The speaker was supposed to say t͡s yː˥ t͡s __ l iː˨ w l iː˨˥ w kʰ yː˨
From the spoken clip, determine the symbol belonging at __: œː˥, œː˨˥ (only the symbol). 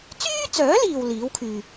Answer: œː˨˥